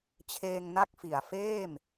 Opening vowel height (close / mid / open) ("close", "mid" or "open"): mid